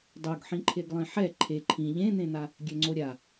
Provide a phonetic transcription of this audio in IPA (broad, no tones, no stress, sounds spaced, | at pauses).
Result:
dˤ o ɡ ħ ĩ ǃʰ e ɡ lˠ ĩ ħ ɛ ǃʰ e ǃʰ ĩ ʎ ẽ n̪ ẽ n̪ a | ɡʲ ø ŋ͡ǀ o ɾʲ a